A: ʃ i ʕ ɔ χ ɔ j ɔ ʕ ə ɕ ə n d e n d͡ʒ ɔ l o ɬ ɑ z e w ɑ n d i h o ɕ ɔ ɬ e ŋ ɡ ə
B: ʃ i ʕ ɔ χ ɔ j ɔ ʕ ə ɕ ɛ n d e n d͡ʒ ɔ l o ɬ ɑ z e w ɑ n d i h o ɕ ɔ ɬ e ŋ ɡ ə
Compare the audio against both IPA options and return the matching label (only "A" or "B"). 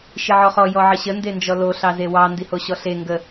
A